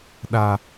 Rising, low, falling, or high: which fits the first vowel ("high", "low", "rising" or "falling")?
high